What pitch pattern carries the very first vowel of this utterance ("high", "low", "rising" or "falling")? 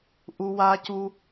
high